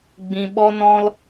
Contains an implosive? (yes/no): yes